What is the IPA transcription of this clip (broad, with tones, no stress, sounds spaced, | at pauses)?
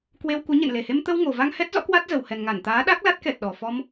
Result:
k w e˧ w k u˨˦ ɲ ḛ˧˨ n l e˨˩ h e˧ m t̪ ə˧ w ŋ o˨˩ v a˧ ŋ h ɛ˦˥ t̚ z ɔ̰˧˥ k w a˦˥ t̚ z ə˨˩ w h ɛ˨˩ n ŋ a˧˩ n t̪ aː˨˦ ɗ a˦˥ k̚ l a˦˥ t̚ k ɛ˨˩ t̚ ɗ ɔ˨˩ f ɔ˧ m